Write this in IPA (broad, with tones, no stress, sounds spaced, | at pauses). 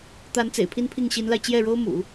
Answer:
t̪ a˧˥ n t͡s ḛ˨˩ ɪ̯ pʰ i˥ n pʰ i˥˩ ŋ ɕ i˧˥ n l a˧ ɪ̯ t͡ɕ j ɛ˥˩ ɻ o˥ ʊ̯ m ṵ˨˩˦